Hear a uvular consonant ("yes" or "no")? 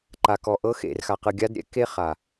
yes